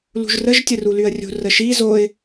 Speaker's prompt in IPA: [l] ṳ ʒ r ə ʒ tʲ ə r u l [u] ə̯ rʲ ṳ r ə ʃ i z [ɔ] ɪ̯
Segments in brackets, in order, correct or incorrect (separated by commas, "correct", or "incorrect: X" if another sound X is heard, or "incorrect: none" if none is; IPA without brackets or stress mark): correct, incorrect: y, incorrect: o